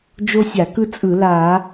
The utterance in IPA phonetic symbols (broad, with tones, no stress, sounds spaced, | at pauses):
d͡ʒ o˥ sʲ a˧˩˧ k ɯ˥ t͡sʼ ɯ˧˩˧ l a˧˩˧